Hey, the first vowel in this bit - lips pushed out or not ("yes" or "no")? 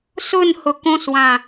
yes